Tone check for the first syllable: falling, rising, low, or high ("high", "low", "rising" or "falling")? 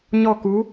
falling